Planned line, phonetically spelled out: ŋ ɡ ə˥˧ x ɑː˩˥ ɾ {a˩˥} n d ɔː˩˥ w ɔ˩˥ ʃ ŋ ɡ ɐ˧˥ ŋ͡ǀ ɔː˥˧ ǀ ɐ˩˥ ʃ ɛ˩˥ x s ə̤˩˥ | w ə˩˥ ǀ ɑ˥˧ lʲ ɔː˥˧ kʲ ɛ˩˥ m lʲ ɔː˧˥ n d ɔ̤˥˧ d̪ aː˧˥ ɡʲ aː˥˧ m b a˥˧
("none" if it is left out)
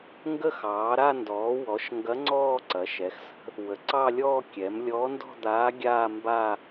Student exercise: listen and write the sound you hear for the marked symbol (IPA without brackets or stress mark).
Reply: a˥˧